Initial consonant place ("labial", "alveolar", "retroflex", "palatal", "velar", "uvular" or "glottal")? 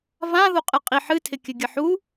labial